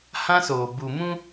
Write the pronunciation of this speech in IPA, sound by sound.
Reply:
hã˦soː˨bu˨ mũ˦

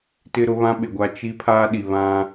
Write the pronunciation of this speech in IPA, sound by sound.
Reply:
tɪ˦ɾʊ˦ βã˦ɓɪ˨ɡʷa˦ t͡ʃi˦ pʰaː˦ɗi˨ βã˦

